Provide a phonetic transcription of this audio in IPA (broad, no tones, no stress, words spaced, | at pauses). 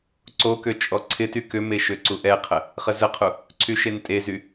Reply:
ǀokø t͡ʃʼɔǀʰɪty kʏme ʃøǀuʔɛqʰə | χəzəqʰu | ǀʰyʃentʼezy